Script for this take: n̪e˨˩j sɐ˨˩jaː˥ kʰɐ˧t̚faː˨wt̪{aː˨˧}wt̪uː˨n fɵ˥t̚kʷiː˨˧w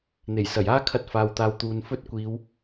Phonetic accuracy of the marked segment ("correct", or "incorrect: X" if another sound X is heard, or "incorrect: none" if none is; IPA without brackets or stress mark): correct